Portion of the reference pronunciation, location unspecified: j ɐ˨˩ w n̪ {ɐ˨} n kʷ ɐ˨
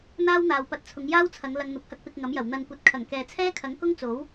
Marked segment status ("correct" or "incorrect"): correct